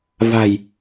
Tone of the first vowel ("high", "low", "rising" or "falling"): low